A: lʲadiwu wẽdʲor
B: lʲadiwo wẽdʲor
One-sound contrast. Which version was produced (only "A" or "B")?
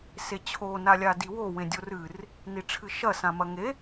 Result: B